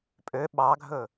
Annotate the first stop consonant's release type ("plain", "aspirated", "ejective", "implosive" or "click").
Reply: ejective